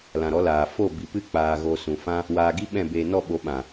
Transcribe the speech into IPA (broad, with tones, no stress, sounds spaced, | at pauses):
l ã˨ ɾ ɔ˨˦ l aː˨ f o˦˨ b i˨ p ɨ˦ k͡p aː˧ ɣ o˧ s ũ˨ f ã˦ | w aː˧ ɡ i˦ ɓ ɛ̃˦˨ b eː˧ n ɔ˦˨ ɓ o˨˦ ɓ ã˨